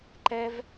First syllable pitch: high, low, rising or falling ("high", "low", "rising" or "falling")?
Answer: high